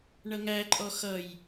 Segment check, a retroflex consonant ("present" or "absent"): present